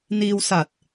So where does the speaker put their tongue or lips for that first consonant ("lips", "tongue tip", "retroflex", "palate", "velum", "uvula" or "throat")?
tongue tip